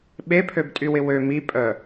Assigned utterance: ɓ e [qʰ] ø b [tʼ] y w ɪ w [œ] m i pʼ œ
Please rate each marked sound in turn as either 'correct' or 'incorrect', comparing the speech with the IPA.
incorrect: pʰ, correct, incorrect: ø

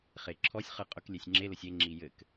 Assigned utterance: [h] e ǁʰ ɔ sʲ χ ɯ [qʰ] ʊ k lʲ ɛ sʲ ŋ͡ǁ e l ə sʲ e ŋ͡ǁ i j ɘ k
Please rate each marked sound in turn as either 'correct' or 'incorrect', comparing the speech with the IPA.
incorrect: χ, incorrect: qʼ

